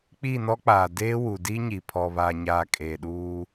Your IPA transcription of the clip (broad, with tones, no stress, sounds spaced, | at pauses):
k͡p i˦˨ n ɔ˦ k͡p aː˨ d eː˦ w u˨ d iː˦ ɲ i˨ pʰ ɔ˨ β aː˨ ɲ aː˨ kʼ eː˨ ɗ uː˦